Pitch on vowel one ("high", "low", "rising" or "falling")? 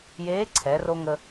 rising